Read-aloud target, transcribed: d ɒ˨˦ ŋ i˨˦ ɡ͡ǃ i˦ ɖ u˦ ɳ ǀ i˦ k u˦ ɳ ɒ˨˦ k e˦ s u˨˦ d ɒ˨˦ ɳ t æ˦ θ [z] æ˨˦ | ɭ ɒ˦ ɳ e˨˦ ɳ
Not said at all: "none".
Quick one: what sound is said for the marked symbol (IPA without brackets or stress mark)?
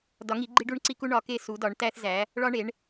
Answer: z